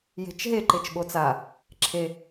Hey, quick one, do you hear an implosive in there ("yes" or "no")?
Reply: yes